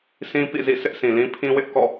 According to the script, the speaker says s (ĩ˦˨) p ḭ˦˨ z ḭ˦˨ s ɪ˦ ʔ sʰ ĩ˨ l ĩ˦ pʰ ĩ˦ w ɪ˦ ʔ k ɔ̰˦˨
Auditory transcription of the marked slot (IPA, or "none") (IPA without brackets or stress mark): ĩ˦